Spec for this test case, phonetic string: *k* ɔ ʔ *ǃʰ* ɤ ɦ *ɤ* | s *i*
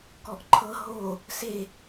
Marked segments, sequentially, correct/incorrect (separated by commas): correct, correct, incorrect, incorrect